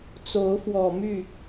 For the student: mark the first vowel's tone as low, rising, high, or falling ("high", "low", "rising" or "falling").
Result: rising